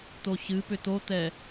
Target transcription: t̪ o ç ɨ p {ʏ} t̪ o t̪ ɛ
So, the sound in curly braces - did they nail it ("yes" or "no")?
yes